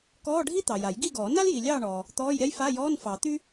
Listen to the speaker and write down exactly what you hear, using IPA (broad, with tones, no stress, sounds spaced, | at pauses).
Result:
k ɔː˧˥˧ ɖʱ i˥ t̪ ɑ˨ j a˨˩˦ j ɡ i˥˨ ɡ ɔː˨˩˦ n a˥ l j i˨ lʲ ɑː˥˨ ɳ ɔː˨ | t̪ ɔː˧˥˧ j ɾʲ a˥ j f a˧˥˧ j ɔː˧˥˧ n f ɑ˨˩˦ t̪ y˥